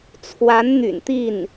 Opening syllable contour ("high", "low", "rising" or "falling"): rising